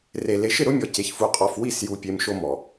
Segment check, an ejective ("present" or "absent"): present